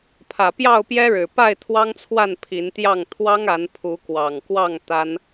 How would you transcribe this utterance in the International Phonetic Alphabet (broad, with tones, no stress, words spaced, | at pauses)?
pʰä˨˩pjɑ˥˨ʊ̯pjɛ˦ɻɻ̩˨˩ pa˥˨ɪ̯ t̪ʰwɑ˦ŋt͡sʰwa˥˨n pʰi˨˦nt̪jɑ˥˨ŋ t̪ʰwɑ˦ŋa˨˦n pʰu˨˦kwɑ˨˩ŋkwɑ˥˨ŋ t̪a˦n